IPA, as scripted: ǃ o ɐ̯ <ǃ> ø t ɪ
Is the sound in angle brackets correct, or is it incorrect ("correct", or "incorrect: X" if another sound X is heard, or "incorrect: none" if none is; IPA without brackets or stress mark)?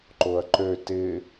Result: correct